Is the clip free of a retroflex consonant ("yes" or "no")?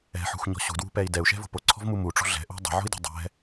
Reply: no